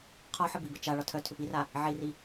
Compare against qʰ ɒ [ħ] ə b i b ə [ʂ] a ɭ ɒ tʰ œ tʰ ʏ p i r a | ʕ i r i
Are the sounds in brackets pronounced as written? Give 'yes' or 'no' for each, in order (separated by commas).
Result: yes, no